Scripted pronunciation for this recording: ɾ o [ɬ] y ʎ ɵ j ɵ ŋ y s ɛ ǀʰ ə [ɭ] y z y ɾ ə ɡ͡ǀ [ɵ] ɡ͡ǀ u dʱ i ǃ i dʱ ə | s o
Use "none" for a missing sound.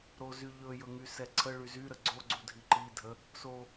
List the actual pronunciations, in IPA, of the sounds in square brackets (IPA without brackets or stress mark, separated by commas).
z, ɭ, o